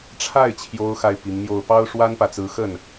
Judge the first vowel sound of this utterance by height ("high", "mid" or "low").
low